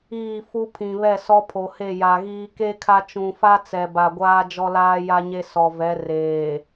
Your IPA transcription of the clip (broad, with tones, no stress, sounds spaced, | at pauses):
iː˦˨ f u˦ pʰ ĩ˨ β ɛ˦˨ s ɔ˦ pʰ o˨ h e˦˨ j a˨ ɣ iː˦ k e˦ kʰ a˦ t͡ʃ ũ˨ f a˦ t͡s ɛ˨ b a˨ ɡʷ aː˦ d͡ʒ ɔ˦ l aː˦ j a˦ ɲ e˦ s ɔ˨ v ɛ˨˦ r eː˨